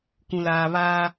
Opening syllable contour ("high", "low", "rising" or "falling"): low